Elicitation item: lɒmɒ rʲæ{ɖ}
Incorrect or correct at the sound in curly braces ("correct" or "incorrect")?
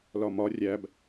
incorrect